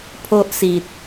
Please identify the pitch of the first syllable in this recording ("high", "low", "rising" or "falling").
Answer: high